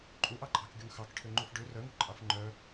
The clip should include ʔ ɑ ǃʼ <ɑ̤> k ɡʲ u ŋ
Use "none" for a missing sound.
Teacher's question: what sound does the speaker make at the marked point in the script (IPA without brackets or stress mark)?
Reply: ɑ̤